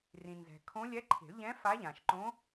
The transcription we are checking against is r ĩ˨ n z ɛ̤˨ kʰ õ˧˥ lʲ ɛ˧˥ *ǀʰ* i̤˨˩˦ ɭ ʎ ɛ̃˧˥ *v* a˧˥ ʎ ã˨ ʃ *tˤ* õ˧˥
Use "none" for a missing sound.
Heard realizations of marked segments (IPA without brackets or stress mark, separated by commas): ǃʰ, f, ǃ